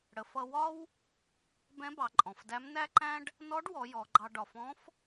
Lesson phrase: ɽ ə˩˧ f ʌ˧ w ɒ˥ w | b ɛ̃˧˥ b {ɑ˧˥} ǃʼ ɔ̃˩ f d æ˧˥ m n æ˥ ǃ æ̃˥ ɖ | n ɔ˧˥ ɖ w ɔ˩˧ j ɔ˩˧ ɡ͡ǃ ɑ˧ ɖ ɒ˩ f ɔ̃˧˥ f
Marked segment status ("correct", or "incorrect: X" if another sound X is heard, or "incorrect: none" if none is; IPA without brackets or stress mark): incorrect: ɑ˩˧